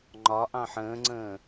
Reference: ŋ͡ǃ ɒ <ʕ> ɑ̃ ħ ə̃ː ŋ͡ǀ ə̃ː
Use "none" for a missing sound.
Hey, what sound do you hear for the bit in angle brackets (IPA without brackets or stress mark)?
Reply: ʔ